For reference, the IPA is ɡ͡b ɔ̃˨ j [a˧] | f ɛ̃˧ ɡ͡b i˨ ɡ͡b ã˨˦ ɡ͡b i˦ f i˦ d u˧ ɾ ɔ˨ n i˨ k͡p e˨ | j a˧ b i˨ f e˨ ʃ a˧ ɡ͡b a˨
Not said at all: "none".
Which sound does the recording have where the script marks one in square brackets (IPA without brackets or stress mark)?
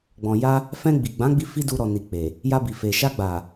a˧